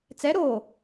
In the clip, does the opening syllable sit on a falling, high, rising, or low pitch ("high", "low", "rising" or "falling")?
rising